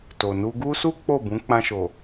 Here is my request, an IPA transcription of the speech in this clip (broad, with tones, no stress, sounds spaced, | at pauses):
t o˨ n u˧ ɡ u˦ s u˦ k͡p o˦˨ b ũ˨˦ k͡p ã˧ ʃ o˨